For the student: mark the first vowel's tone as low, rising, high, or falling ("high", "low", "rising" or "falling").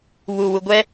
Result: low